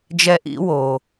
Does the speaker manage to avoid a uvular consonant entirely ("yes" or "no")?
yes